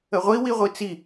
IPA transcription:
ə ʁʷ i w i ʁʷ i t͡s i

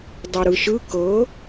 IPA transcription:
dˤ ɯ ɾ ɯ ʃ ɯ k ɤ

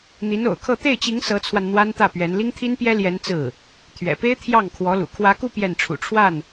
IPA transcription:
n̪ i˧˥ n o̰˨˩ ʊ̯ kʰ ɤ˥˧ t̪ e˥˩ ɪ̯ t͡ɕ i˧˥ ŋ s ɤ˧˥ t͡sʰ w a˧ n n̪ w a˥ n t̪ ä˥˩ p ɥ ɛ˧˥ n l i˥ ŋ t̪ʰ i˥ n p j ɛ˥ l j ɛ˧˥ n t͡s ɹ̩˥˩ | t̪ʰ ɥ ɛ̰˨˩ p e˥ ɪ̯ t̪ʰ j ɑ˥˩ ŋ kʰ w ɔ˧˥ l ṵ˨˩ kʰ w ä˧˥ k u˥˧ p j ɛ˥˩ n ʈ͡ʂʰ ṵ˨˩ ʈ͡ʂʰ w a˥˩ n

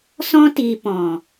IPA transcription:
s ɔ̃˧ t iː˨ p ɔ̃˨

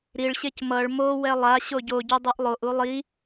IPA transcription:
ɾ i ɭ ɕ e c m ʌ ɭ m o w ɛ lˠ a ɕ o ɟ o ɟ u dˤ u ʔ lˠ o ʔ u lˠ i

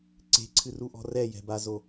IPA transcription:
ǀ e̤ ǀʰ ɨ r u ʔ ɔ̤ r ɛ j ɛ̤ b a z o

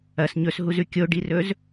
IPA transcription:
ɐ s ɲ ɵ s ɦ u z ʉ kʲ o ɖ i r ɵ z

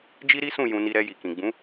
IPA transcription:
d͡ʒ i˦ ɾ i˦ s ũ˦˨ j ũ˧ n i˧ ɾ ɛ˧ j i˨ k ĩ˨ ɡ͡b ũ˨˦

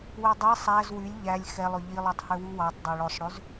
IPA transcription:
w ø dˤ ɛ sˤ æ z w y lʲ ʎ æ lʲ x ɛ lˠ ɵ ʎ i lˠ y tˤ h ø w u w ɑ tˤ dˤ ø ɭ ɵ sˤ ɽ ø z

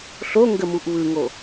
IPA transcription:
ɬ o ŋ ɡ ə m u ʔ β ɯ ŋ o

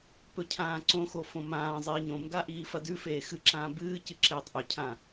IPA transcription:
p ɵ cʰ ãː ǀ õ x o f õ m ãː zˤ iː ɲ õ m ɡ a ʔ iː f ɐ d ʉ f eː x ɨ ǁ ãː b ɨː c ɨ ǁ eː tˤ ʔ ɵ cʰ ã

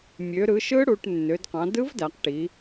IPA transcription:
mʲ ø˩˧ ɾ ɯ˩˧ ʃ ɯ˦˥ ɽ u˩˧ ʈ nː ø˩˧ d q ɑ̃˩˧ d ɯ˦˥ v d æ˩˧ q ʈ i˩˧

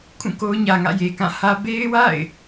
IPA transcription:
kʰ ũ˦˨ k o˦ ʊ̯ ɲ ä˨ ŋ ä̰˦˨ j e˨ k ã˦˨ h ä˦ b e˦ ɪ̯ w a̰˦˨ ɪ̯

